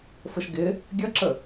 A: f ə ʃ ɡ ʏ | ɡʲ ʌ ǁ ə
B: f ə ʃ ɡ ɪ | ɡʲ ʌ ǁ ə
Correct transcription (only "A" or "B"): B